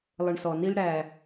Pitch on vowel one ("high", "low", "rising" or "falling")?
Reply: low